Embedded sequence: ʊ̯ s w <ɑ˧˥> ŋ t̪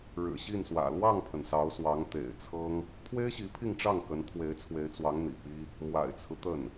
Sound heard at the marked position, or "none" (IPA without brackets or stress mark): ɑ˧˥